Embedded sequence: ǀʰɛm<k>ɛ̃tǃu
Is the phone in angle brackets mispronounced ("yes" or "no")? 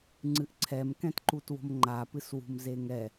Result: no